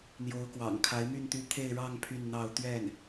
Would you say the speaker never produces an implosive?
yes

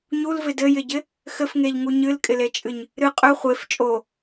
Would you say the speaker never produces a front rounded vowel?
no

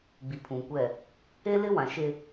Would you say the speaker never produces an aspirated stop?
no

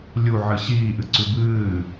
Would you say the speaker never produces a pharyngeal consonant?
no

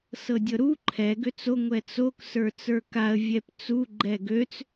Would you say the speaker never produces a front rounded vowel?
no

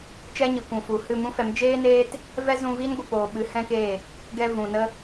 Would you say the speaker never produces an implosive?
no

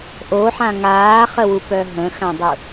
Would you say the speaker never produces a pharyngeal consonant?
no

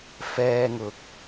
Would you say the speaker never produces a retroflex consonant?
yes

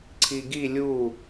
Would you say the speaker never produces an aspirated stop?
no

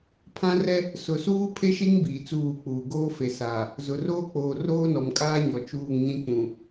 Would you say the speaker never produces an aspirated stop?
no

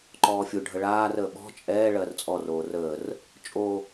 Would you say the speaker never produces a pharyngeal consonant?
yes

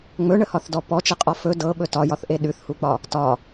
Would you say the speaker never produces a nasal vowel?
yes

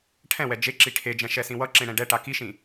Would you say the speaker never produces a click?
no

